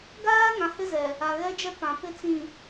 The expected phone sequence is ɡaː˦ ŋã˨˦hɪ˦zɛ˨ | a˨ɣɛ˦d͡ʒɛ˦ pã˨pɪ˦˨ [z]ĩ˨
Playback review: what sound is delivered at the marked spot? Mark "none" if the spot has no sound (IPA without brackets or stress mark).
t͡s